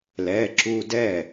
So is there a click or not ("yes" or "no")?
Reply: yes